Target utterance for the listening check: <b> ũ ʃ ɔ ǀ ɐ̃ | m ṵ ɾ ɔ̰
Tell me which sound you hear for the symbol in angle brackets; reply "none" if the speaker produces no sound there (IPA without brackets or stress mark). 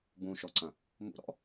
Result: b